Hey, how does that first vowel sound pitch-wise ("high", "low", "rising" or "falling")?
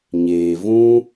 low